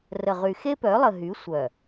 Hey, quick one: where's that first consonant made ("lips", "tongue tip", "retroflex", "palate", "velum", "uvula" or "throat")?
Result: tongue tip